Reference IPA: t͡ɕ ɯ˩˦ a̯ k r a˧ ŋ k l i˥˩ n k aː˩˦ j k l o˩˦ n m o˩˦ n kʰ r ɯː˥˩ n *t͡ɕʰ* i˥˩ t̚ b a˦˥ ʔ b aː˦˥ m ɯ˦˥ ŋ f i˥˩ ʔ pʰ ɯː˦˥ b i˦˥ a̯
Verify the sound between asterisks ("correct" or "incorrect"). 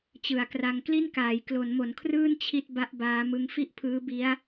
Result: correct